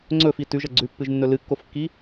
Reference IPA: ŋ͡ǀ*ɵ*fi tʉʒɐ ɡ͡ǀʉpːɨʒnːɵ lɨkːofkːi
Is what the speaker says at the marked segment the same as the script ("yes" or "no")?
yes